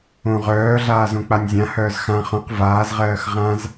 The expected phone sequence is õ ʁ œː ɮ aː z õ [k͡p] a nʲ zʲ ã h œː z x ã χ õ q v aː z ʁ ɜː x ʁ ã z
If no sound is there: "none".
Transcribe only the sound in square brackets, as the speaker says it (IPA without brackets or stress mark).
k͡p